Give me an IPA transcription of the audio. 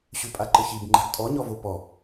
ɕ ʉ pʼ a ǃ ə ç i b ŋ͡ǃ a̤ ɡ tʼ ɔ ɲ ɔ v o p ɔ

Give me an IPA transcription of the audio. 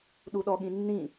ɗ u ɗ ɔ ɠ ĩ nː ĩ

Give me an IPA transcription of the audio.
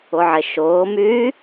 ʊ ʕ ɪ ʃ ʊː m yː

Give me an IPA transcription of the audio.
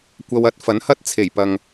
kʷ ɐ˧ w ɐ˨˥ t̚ f ɐ˨˥ n h ɐ˥ t̚ t͡sʰ e˨˩ j p ɐ˨ ŋ

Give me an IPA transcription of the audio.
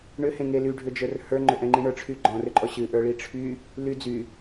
ɳ ʏ h ẽ ŋ e l y ɖʱ ʏ d͡ʒ ə˞ r h ə˞ ŋ͡ǃ ʏ ʔ ɛ̃ ŋ͡ǃ ĩ ɳ ə˞ ʈ͡ʂʰ y ɡ͡ǃ ɔ̃ r ʏ ǃʼ ɔ ɕ ɨ ʔ ə˞ ɭ i ʈ͡ʂʰ y | l y d͡z y

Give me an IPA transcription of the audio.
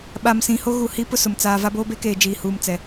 ɓ a˨ m s ĩ˨ h o˦ ɣ u˨ h i˦ p ʊ˦ s ʊ˨ m t͡s aː˨ v a˦ b oː˦ b e˦ k eː˨ d͡ʒ iː˨ h uː˨ m t͡s ɛ˨

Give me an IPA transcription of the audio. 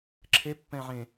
ǁʰ e pː ɛ̃ ʕ ẽ

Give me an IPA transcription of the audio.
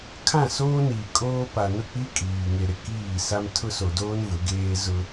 kʰ ã˦˨ s oː˦ n iː˨ kʼ oː˦ p a˨ n ʊ˦˨ k͡p i˦ kʼ iː˨ ŋ e˨ ɾ ɪ˨ k iː˦˨ s a˦ m tʰ ʊ˦ s o˨ d oː˦ n v ʊ˨˦ ɡ eː˦ z ʊ˦

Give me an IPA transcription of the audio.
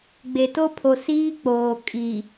ɡ͡b e˨ t o˦ pʰ o˨ s iː˦ k͡p oː˨ kʼ i˨

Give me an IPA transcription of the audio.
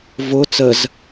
v ʊ t͡s ə z

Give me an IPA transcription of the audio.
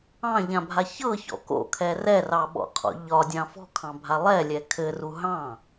ɑ̃ ʎ ã bʱ a ç ɤ ç ɔ̰ k o̰ kʰ ɛ r ɛ r ɑ ɓ ɔ̰ qʰ ɔ̰ ʎ ɒ dʲ ɑ̃ f ɔ̤ kʰ ɑ̃ bʱ a lˠ ɛ lʲ ɛ kʰ ɘ r u ɦ ɑ̃

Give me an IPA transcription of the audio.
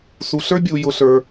s u˩ ɬ ə˞˥ bʲ u˩ j ʊ˩ ɬ ə˞˩

